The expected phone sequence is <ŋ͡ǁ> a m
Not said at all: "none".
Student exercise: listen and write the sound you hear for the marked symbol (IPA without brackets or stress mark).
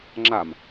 ŋ͡ǁ